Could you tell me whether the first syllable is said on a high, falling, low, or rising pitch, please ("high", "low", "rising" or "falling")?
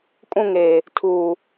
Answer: falling